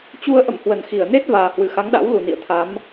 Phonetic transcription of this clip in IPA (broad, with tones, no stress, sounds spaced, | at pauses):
t͡ɕ u˧ ə̯ ʔ ə̰˧˨ m h w ə˧˩ n x i˧˩ ə̯ n e˦˥ t̚ v aː˨˩ h w ɨ˧˩ x a˨˦ ŋ ɗ a̰˧˥ w l u˨˩ n ḭ˧˨ ə̯ t̪ʰ a˨˦ m